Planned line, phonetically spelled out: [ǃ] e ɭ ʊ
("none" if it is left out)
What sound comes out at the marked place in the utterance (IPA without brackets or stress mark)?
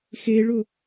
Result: x